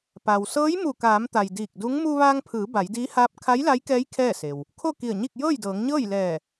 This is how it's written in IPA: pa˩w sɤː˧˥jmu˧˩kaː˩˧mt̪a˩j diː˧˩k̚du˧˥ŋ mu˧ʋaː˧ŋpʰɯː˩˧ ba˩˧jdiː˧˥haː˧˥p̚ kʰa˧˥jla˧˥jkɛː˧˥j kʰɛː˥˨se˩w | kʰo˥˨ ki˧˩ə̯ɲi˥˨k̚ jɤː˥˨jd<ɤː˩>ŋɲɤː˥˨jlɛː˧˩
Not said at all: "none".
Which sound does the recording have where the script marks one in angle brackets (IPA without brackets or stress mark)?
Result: ɤː˩˧